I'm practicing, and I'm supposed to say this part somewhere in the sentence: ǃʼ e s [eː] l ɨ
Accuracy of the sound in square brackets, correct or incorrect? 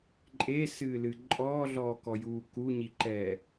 incorrect